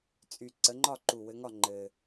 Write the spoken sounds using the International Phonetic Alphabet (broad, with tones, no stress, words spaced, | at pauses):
t͡sʼy˨˩ ǀə˨˦ŋ͡ǃɒ˥˨ǃu˨˩ wɘ˨˦ŋɒ˥˨ ŋ͡ǃɘ˨˩